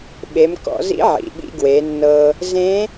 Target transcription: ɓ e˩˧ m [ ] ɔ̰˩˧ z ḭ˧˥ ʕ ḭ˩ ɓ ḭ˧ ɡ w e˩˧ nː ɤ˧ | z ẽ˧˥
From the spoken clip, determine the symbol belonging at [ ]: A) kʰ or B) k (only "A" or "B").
B